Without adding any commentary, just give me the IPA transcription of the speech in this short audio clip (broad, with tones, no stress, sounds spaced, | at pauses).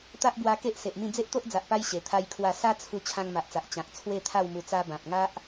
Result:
t̪ a˦ ʔ b w a˧ k e˦ ʔ s e˨ ʔ m ĩ˥˧ d͡z e˦ ʔ t̪ o˦ ʔ d͡z a˨ ʔ p a˧ j ɕ e˨˩ t̪ʰ a˦ j kʰ w a˥˧ s a˦ t͡sʰ u˧ t͡ɕʰ ã˧ ŋ m a˨ ʔ t͡s a˨ ʔ t͡ɕ ã˨ k̚ t͡sʰ w e˥˧ t̪ʰ a˥˧ w m u˧ t͡s a˧ b ã˨ p̚ ŋ a˦ ʔ